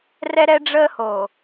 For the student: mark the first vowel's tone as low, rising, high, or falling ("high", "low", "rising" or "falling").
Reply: high